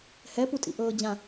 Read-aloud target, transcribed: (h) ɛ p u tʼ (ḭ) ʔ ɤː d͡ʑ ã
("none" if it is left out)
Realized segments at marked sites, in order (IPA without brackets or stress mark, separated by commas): h, ḭ